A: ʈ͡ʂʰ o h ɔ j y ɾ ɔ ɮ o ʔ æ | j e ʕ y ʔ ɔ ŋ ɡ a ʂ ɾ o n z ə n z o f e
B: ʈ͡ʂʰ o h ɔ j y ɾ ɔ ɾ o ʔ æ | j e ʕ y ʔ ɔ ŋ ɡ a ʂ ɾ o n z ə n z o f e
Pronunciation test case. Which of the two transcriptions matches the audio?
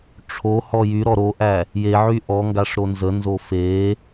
B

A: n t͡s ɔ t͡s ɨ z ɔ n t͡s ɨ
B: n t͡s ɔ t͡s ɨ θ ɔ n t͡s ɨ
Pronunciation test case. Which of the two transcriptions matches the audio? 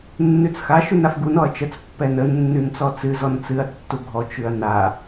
A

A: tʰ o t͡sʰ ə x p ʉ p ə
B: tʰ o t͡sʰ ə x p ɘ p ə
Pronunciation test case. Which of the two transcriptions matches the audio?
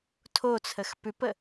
A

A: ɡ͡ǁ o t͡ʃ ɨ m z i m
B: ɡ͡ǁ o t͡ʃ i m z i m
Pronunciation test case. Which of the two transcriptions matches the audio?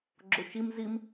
B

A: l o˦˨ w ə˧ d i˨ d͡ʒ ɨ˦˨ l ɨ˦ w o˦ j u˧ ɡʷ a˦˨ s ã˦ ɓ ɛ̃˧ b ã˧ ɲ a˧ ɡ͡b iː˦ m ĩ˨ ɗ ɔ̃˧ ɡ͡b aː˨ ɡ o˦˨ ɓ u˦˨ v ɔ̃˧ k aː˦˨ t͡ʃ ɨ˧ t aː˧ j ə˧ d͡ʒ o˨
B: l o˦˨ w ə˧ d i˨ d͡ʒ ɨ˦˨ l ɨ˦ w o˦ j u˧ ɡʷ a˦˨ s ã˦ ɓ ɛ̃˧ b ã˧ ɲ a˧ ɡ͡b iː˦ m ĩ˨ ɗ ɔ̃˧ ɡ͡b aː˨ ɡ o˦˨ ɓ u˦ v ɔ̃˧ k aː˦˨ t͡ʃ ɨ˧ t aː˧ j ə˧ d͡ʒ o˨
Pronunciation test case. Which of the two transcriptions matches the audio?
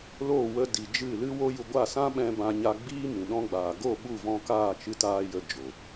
A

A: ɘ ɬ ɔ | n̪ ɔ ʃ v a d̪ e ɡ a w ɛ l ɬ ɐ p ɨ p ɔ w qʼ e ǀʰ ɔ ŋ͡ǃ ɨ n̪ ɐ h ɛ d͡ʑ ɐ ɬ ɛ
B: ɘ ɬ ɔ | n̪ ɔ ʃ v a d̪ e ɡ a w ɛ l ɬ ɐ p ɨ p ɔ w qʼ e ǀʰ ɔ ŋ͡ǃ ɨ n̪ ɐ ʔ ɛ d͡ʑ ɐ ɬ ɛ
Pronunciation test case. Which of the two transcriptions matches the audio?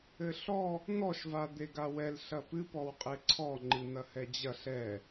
A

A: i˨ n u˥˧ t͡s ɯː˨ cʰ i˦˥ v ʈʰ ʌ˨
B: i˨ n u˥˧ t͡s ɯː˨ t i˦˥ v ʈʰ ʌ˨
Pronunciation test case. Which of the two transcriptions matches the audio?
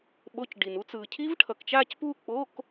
A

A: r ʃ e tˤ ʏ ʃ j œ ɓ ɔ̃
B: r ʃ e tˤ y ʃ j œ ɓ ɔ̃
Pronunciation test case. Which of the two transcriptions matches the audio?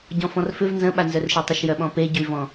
A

